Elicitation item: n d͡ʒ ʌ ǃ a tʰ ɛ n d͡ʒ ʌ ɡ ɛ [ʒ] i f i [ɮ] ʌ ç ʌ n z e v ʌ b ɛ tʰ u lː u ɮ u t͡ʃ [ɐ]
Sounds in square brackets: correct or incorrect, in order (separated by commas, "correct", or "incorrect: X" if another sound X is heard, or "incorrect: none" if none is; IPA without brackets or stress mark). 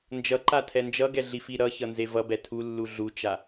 incorrect: ɮ, incorrect: ɾ, incorrect: a